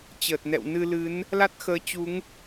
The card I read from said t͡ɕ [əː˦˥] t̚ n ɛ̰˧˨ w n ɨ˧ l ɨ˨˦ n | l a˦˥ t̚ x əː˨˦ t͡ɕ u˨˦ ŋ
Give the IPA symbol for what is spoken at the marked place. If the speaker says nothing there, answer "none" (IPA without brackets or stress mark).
əː˨˩